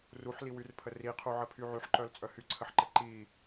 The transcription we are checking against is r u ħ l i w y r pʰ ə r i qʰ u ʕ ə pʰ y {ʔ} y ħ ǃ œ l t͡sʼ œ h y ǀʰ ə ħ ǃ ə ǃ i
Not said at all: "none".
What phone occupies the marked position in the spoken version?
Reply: ʕ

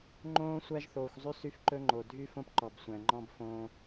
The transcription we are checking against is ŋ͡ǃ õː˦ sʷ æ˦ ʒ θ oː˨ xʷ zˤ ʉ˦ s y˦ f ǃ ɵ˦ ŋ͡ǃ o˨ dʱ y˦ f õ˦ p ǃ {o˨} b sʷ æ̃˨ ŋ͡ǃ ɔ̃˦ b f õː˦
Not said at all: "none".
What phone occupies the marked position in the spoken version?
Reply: ɔ˨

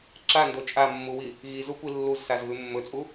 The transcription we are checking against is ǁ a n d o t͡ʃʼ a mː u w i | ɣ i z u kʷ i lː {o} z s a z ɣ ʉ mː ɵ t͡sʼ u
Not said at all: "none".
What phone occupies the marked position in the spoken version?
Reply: u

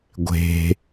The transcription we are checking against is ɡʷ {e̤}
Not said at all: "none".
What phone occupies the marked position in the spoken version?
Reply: e̤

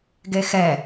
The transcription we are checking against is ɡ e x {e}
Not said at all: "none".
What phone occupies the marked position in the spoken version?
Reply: ɛ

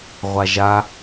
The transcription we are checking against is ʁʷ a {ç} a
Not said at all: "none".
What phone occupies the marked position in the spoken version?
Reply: ʒ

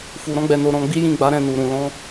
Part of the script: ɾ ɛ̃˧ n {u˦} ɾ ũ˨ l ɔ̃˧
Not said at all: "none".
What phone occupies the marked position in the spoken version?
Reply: u˨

